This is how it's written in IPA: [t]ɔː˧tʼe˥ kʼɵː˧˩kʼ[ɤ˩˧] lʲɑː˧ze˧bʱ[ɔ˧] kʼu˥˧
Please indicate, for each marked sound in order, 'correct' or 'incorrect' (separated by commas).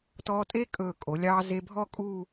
correct, incorrect, incorrect